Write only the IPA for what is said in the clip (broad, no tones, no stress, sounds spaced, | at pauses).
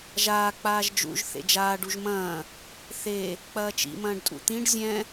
ʒ aː k͡p aː ʒ d͡ʒ ṵ ʒ θ ḛ d͡ʒ aː ɖ u ʒ m ɐ̃ː | θ e | k͡p ɐː t͡ʃ ḭ m ɐ̃ː ɖ tʼ ṵ t̪ ĩ ɖ zʲ ɛ̃